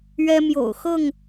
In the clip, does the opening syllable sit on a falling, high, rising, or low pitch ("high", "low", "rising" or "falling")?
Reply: high